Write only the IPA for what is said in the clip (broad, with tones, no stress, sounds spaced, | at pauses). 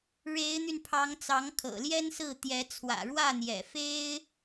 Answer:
ɻ e˧˥ ɪ̯ n̪ y˧ n pʰ ɑ˧˥ ŋ t͡s ɑ˧˥ ŋ kʰ ɤ̰˨˩ l j ɛ˥ n s ɹ̩˥˩ t̪ j ɛ˧˥ t͡sʰ w ä̰˨˩ ɻ w ä˥˩ n̪ j ɛ̰˨˩ f e˥ ɪ̯